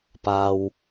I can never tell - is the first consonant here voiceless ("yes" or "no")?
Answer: yes